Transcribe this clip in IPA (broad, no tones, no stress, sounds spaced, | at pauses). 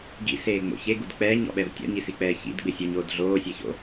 ɡ ḭ s eː ŋ͡m o̰ ç e ɡ u d k͡p ɛː ɲ ɔ̰ ɓ ɛ v tʲ ɔ̰ ɲ i s i k͡p ɛː ç ḭ d ɡ͡b ɪ sʲ u ɲ oː d ɮ oː sʲ ɛ ç o̰